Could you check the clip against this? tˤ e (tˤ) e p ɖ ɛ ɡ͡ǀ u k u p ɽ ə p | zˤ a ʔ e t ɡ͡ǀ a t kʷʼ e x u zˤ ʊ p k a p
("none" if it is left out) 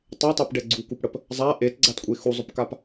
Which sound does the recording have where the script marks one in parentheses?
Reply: tˤ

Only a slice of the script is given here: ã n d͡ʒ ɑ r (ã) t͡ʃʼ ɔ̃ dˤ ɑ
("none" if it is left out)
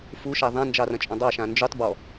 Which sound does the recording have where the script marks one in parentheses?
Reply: ɐ̃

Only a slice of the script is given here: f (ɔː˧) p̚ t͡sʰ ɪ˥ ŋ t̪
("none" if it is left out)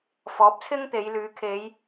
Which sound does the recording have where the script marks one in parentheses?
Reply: ɔː˨˥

